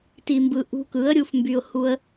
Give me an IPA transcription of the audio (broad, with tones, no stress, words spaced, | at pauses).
ti˧mbɯ˧ ʔṳ˧kɯ˨˦ə̯ɾʲu˧f mby˧ʊ̯ hu˦ə̯